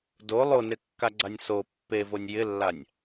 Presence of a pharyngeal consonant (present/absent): absent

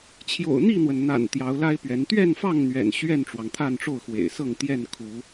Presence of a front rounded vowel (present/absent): absent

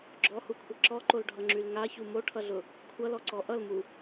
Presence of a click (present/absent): present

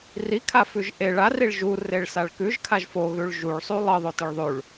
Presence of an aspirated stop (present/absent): present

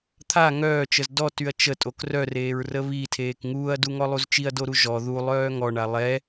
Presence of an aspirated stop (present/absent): present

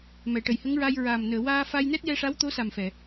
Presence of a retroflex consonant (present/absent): present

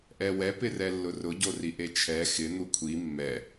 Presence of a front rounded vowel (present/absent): absent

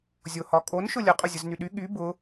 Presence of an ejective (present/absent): present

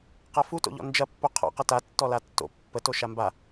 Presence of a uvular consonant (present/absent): present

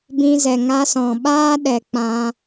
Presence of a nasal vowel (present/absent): present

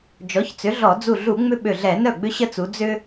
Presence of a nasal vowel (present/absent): absent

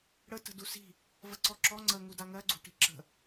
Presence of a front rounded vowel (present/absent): absent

